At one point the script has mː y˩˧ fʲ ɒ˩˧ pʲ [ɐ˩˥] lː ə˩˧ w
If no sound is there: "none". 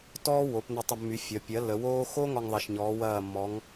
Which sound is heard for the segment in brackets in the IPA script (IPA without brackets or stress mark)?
ɐ˩˥